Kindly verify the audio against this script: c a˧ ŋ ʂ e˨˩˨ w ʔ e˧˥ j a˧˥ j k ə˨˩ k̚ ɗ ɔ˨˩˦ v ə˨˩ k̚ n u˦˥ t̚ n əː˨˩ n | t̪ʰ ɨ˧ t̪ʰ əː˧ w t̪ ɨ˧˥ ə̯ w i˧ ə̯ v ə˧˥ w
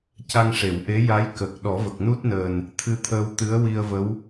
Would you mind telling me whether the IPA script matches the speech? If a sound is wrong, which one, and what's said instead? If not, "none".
none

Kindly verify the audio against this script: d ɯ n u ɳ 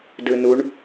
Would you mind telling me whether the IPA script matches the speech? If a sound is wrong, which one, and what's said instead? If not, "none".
none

